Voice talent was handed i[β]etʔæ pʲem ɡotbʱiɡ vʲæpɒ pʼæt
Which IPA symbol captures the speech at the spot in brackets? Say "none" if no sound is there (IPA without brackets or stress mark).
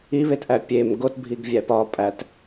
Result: β